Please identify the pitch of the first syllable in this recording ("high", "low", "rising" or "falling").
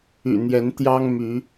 low